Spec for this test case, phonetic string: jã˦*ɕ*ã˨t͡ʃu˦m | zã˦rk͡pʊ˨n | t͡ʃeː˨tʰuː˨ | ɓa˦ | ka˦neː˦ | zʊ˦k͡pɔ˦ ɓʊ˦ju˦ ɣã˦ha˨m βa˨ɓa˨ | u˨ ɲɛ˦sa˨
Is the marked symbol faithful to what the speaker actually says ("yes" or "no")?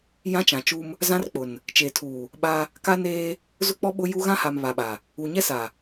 no